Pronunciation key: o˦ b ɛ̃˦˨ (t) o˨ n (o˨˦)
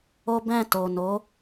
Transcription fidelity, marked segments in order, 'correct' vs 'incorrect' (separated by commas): correct, correct